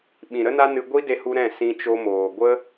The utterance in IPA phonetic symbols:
ɓ ĩ˨ ɾ ə˦ n a˦ n ɨ˧ ɡʷ i˦ d e˧ h u˧ ɾ ɛ̃˦˨ s ĩ˧ t͡ʃ o˧ m oː˨ ɡʷ ə˦

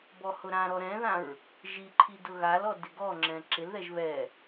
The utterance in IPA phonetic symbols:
b ɔ h ʊ ɾ ã ɾ ɔ ɾ ɛ̃ ð ã ɹ | ʒ i ǃʰ i d ʊ ɣ a l ɔ d ɪ ɡ ɔ ŋ͡ǁ ɛ̃ ǁ ɪ l ð ɛ ʒ β ɛ

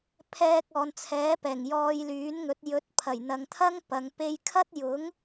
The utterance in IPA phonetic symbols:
pʰ ɛː˧ k̚ ɔː˨ n t͡sʰ ɛː˨˥ p ɛː˨˩ ŋ j ɔː˧ j l yː˨˥ n ŋ ɵ˨˥ t̚ j ɵ˨˥ t̚ pʰ ɐ˨˩ j n̪ ɐ˨ ŋ t̪ʰ ɐ˥ ŋ p ɐ˨˧ ŋ p e˧ j kʰ ɐ˥ t̚ j ʊ˨˥ ŋ

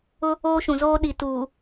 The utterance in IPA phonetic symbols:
ʊ˦ | oː˦ ʃ ũ˨ z oː˦ ɗ i˨ t uː˨

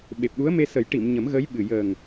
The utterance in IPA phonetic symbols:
ɓ e˨˩ p̚ ɗ u˧˥ ə̯ m e˧ s ə˨˩˦ j ʈ i˨˩˨ m ɲ ə˨˩˦ m ɣ ə˧˥ j ɓ ɨ˨˩ j əː˨˩ ŋ

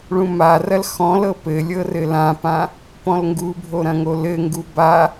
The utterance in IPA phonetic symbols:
ɭ ũ m a r ɐ l x ɔ̃ l ɤ p ɘ lʲ ɤ r ɘ l ã p ã | p ɔ̃ l ŋ ɡ u bʱ o ɾ ɐ̃ ŋ o l ɘ ŋ ɡ u b a

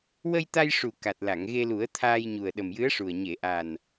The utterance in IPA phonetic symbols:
w ə˧ j t̪ a˧ j ʂ u˨˩ k a˨˩ t̚ l a˨˩˨ ŋ ɣ e˧ l u˨˩˦ ə̯ t̪ʰ aː˧ j ɲ u˨˩ ə̯ ɗ ə˨˩ m j ɨ˧˥ ə̯ ʂ u˨˩ ə̯ ɲ e˨˩˨ ʔ a˨˩ n

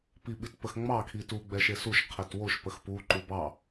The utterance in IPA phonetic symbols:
p i ɓ i t p ə x ŋ͡m ɑ kʰ i t u ɡ͡b ɛ ʃ e s u ʃ qʰ e t w o ʃ p ə x p u ǃ u b ɑ

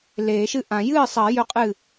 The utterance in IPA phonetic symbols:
l eː˨˩˦ ʃ ɨ˥˩ ʔ ã˨˩˦ j ɨː˥˩ sˤ ɐ˨˩˦ j ɵ˥˩ qʼ ɨ˥˩

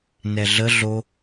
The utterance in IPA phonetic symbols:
n ɛ ɮ ə ɮ o

